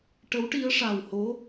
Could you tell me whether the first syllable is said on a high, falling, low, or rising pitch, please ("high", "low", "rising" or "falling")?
rising